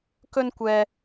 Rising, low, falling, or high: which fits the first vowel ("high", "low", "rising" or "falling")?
high